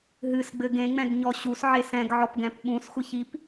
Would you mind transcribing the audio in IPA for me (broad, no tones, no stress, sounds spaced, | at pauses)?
ɦ ɨ s ɡ͡b ɘ ɡ ẽ ŋ͡m ɛ̃ ɡ ɲ ɔ ɕ u s ʕ e s ɛ̃ ɡ ʕ ɔ p ɡ ɛ̃ p ɓ ũ s xʷ ɨ ç i p